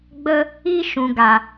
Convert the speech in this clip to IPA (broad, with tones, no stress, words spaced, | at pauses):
ɡ͡bə˦ | i˦ʃũ˨ɡa˨